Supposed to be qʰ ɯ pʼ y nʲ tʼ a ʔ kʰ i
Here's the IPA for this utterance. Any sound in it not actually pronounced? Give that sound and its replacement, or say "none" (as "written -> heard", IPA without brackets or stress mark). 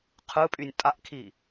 none